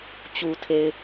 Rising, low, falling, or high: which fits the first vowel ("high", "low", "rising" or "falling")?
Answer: low